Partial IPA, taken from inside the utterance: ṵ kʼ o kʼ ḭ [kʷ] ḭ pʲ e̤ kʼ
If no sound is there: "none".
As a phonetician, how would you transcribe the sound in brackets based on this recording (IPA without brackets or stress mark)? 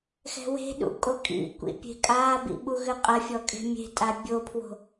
kʷ